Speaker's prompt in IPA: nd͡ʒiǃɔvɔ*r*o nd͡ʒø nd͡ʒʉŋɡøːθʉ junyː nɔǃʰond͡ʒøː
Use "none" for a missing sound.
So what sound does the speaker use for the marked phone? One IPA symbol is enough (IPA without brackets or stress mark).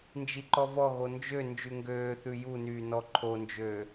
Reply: ɣ